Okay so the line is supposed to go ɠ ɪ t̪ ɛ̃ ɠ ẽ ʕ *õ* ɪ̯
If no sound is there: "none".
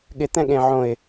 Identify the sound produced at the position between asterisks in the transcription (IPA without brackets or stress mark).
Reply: õ